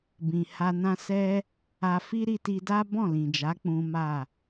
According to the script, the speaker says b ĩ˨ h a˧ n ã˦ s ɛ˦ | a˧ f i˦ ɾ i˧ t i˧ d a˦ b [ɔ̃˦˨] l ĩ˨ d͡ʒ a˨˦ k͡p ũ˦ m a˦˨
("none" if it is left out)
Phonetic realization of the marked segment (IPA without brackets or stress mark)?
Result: ɔ̃˦˨